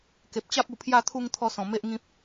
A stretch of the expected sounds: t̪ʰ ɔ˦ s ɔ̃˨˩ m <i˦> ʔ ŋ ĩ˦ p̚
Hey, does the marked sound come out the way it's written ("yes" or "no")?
no